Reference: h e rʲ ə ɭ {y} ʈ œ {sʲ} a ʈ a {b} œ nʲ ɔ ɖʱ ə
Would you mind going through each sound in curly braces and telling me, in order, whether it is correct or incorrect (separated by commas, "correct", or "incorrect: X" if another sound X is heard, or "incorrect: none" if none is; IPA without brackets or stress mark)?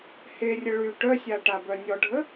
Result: correct, correct, correct